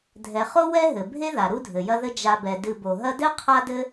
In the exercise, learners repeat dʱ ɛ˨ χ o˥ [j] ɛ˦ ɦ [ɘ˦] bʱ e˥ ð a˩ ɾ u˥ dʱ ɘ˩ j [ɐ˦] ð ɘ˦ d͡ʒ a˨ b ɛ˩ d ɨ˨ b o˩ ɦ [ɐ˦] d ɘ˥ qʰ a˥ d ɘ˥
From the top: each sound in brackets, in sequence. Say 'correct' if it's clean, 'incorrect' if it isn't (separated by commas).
incorrect, incorrect, correct, correct